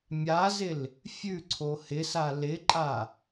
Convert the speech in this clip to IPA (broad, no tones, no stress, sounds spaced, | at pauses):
mʲ a z ɪ l | fʲ ʉ ǀʰ o h ɪ s a l ɪ ǃʼ a